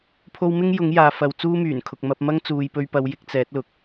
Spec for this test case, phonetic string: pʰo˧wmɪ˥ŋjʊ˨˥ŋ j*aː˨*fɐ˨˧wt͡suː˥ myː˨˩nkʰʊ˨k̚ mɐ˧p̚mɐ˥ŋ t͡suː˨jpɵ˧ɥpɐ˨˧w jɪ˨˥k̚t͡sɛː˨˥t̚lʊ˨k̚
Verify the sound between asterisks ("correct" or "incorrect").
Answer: correct